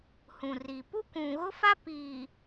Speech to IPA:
hũ˨ri˨ pu˦kʷũ˨ɣʊ˦fa˦ piː˨

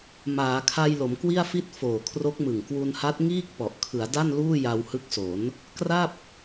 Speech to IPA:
maː˩˦kʰa˧j lo˩˦mkwi˥˩a̯fi˥˩t̚ foː˨˩kʰro˦˥k̚mɯ˨˩ŋ kwu˧nha˦˥t̚ ŋiː˥˩k̚ pɔ˨˩ʔkʰɯ˩˦a̯da˥˩n luː˥˩ja˧whɯ˦˥k̚so˩˦n | kra˥˩p̚

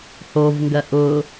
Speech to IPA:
hovŋɡɜ ʔʊ

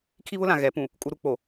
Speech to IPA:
kʰi˦βʊ˦lã˨ ɣɛ˨˦ pũ˨ | kʼu˦ɾu˦ k͡po˨

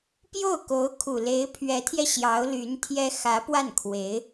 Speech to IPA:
pjo˥˩ʊ̯ko˧˥ʊ̯kʰu˨˩ le˧˥ɪ̯pʰɥɛ˧˥t̪ʰjɛ˧ ɕjɑ˧˥ʊ̯ly˧˥nt̪ʰjɛ˥ xä˧˥pwa˥˩nkʰwe˧˥ɪ̯

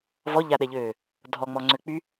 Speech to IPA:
vɔʎaɗɛʎøː | dʱɔŋ͡mɔŋ͡ǀø k͡py

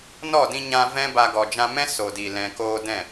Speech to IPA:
nɔ˦˨dĩ˧ɲã˧ vɛ̃˦ba˧ ɡɔ˨ d͡ʒã˧mɛ̃˦ so˨di˨ lɛ̃˨koː˧ dɛ̃˦˨

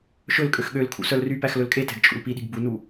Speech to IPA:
ʃɵlkʼøx ɠøl kʰṵsœlrypæx lɵlkʼetɛ̤ɡ t͡ʃʼṵlpiɗi̤ɡ bunu

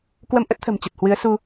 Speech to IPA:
kwə˧m ʔə˦˥t̚t̪ʰə̤˨˩m t͡ɕə˨˩t̚hwɨ˨˦ə̯su˧

